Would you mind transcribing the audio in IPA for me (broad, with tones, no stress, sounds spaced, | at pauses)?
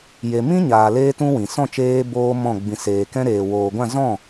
j e˧ m ĩ˦ ɲ aː˨ l eː˧ t ũ˧ w ĩ˨ s ɔ̃˦˨ t͡ʃ eː˧ b oː˦ m ɔ̃˦˨ ɡ͡b ĩ˨ s eː˨ k ɛ̃˧ ɾ eː˨ w oː˨ ɡʷ ã˦˨ z ɔ̃˦˨